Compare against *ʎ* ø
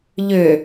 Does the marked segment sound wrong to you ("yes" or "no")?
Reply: no